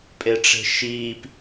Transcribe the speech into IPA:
pʼeʈ͡ʂe̤ʃiːp

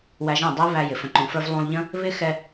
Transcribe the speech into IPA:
wæ˧ʒɛ̃˦˨dˤə˦i̯ βæ˧jɪ˨ fə̃˨ǃũ˨fə˞˧v lˠũ˧lˠʎə̃˦ | βɪ˦ xɛ˧

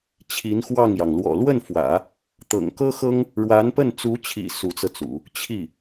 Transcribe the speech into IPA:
t͡ɕʰi˧˥nxwɑ˥˩ŋjɑ˩ŋ lwɔ̰˨˩lwə˥˩nfwä̰˨˩˦ | t̪ɤ̰˨˩ŋkɤ˥xɤ˥ŋ | ɻwa˧˥npə˥˩n t͡su˧˥t͡ɕʰḭ˨˩ su˧˥t͡sɤ˧t͡sṵ˨˩˦ | t͡ɕʰi˥˩

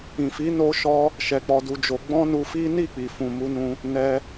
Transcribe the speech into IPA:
ĩ˨fi˨˦ no˦ ʃɔ˦ | ʃɛ˧k͡pɔ˧du˧d͡ʒo˧ ɡ͡bɔ̃˦nu˧fi˦ ni˦˨k͡pi˨fũ˨ mu˧nũ˧ | nɛ˧

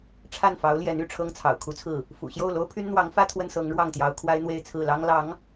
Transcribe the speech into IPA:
ʈ͡ʂʰa˥˩nfɑ˧˥ʊ̯ljɛ˧˥n y˥˩ ʈ͡ʂʰɤ˥ŋt͡sʰɑ̰˨˩ʊ̯kʰu˧˥t͡sʰɹ̩˥˩ | fṵ˨˩ɕjo˥˩ʊ̯ lo˥ʊ̯pʰy˥nn̪wɑ˧˥ŋfä˥ t̪ʰwə˥nsɤ˧˥ŋɻwɑ˥˩ŋt̪jɑ˧˥ʊ̯ kʰwa˥ɪ̯n̪we˥˧ɪ̯t͡sʰɹ̩˥˩lɑ˥ŋ lɑ˧˥ŋ

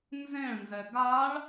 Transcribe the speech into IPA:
nzẽɭnzɛ ɡaɭ

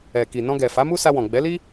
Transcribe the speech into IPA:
ɛ˨ki˨ nɔ̃˧ɡɛ˨fa˨˦mu˦ sa˧wɔ̃˨ ɡ͡bɛ˨˦li˦

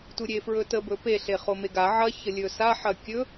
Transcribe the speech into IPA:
tuɾʲefɹɵtə bɵpe ɬeχomeɡa ʕɐ çəlʲɵsa ħɐkʲɵ

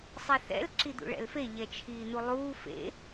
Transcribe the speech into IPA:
sˤiθɛ̰l ǁid̪ṵɭɛ̰lfe ʎɛt͡ʃʰiːn̪ulˠuː fḛ

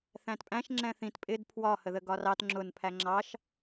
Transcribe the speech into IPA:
θæ̃tpʼæ̃ʃ ŋ͡ǁɛ̃θĩt pʼɪd pʰwɒ həðəɡɒrɑt ŋ͡ǁʊn pʰæŋ͡ǁɑʃ

